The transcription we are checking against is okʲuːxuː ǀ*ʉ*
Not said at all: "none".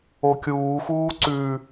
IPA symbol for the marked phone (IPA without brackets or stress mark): ʉ